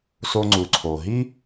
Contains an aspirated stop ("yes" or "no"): yes